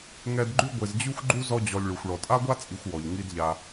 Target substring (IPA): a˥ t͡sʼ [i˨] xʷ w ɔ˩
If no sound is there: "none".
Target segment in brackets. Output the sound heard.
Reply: i˨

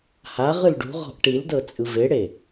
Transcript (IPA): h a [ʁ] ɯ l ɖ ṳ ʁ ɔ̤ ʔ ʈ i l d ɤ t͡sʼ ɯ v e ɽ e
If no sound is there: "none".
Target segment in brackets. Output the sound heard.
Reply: ʁ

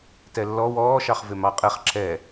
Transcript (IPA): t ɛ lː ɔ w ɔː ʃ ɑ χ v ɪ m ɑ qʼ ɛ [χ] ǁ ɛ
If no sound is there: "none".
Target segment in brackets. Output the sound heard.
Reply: χ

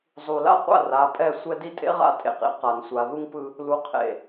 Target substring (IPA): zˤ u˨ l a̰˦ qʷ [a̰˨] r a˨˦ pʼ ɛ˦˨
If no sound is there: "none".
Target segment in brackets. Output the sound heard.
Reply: a̰˦˨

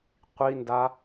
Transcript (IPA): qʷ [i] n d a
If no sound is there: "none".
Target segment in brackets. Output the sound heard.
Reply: i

